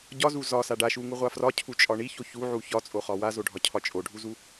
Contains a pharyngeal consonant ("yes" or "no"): yes